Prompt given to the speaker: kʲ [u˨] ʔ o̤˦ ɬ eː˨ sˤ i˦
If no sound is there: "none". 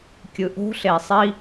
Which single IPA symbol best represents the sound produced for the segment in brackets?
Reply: ɯ˨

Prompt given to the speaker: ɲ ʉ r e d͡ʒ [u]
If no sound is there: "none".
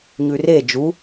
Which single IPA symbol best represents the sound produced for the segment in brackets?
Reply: u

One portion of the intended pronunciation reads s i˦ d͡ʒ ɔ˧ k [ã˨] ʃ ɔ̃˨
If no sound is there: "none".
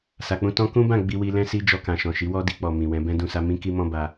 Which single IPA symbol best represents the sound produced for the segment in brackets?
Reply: ã˨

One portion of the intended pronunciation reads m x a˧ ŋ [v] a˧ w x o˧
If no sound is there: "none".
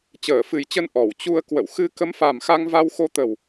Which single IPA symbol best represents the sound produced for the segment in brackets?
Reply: v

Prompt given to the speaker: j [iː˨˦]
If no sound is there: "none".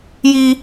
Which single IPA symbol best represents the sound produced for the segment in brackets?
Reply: iː˦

